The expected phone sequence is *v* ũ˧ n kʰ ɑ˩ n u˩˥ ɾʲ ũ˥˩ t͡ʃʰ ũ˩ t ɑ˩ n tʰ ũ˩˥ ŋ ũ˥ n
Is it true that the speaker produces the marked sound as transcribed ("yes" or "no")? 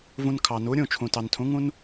yes